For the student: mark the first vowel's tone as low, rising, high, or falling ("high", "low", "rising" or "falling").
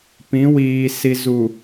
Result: rising